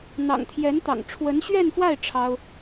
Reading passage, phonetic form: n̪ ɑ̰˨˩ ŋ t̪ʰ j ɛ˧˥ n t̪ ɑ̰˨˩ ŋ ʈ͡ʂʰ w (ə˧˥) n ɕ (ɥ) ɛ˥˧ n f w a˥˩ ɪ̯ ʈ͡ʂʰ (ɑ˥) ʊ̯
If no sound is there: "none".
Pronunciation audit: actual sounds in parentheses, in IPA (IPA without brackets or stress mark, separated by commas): ə˧˥, ɥ, ɑ˥